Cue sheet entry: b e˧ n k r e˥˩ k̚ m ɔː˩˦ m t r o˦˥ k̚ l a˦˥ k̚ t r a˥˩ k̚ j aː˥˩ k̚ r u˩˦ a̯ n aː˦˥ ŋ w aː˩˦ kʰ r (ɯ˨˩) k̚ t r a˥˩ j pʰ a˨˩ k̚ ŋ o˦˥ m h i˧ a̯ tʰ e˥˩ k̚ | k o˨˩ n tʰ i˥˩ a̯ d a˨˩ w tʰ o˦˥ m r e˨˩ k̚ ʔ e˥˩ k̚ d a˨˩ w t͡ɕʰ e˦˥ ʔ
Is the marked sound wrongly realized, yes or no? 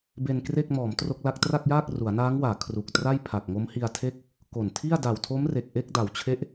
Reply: yes